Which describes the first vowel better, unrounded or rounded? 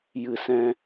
unrounded